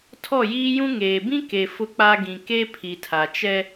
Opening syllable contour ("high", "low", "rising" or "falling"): falling